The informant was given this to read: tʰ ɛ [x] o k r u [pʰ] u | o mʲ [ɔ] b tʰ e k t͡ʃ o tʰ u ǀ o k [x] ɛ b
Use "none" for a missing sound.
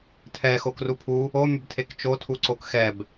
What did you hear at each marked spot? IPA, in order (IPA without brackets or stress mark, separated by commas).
x, pʰ, ʊ, x